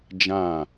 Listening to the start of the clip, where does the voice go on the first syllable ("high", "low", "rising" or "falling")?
falling